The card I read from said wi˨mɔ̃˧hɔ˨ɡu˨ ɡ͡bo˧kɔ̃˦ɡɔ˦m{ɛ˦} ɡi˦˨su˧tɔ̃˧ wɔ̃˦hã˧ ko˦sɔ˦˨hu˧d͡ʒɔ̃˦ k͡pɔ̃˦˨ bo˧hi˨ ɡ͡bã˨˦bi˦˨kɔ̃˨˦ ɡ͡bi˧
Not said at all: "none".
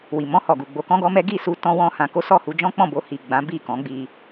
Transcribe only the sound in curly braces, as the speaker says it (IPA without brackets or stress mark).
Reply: ɛ˦